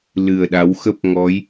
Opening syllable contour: low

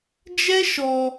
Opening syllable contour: high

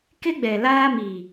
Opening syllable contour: high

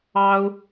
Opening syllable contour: high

